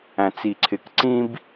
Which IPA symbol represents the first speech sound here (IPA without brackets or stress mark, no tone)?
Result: æ̃